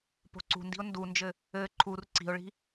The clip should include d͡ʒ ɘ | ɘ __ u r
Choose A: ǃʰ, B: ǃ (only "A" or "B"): A